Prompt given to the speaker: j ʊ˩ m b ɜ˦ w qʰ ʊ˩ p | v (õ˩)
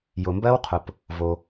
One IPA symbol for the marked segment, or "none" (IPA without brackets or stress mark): o˩